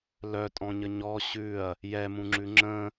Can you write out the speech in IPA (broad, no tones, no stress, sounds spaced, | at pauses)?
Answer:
l œ tʼ ɔ̃ ɲ ə ɲ ɔ ɕ ʉ ɐ̯ | j ɛ m ũ ŋ͡ǁ ʉ ŋ͡ǁ ə̃